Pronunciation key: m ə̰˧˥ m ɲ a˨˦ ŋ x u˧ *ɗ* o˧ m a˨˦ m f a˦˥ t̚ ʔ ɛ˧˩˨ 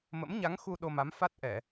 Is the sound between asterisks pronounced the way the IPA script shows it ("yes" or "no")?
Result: yes